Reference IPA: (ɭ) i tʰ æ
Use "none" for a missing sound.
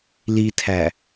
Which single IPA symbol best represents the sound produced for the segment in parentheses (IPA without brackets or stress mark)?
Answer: l